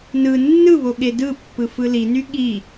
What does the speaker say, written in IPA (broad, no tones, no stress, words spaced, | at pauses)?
nɯ nːɯβo ɠedɯpːɯ fɯliny ɠi